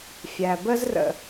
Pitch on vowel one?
low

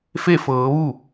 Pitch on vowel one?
falling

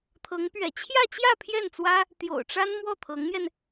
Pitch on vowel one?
rising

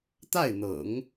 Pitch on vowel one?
falling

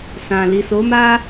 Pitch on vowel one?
low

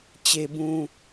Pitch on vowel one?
high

